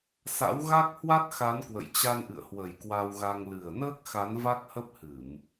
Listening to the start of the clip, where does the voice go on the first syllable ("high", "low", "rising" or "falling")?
rising